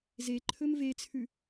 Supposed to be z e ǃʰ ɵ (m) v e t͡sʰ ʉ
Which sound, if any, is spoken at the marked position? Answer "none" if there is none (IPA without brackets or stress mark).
m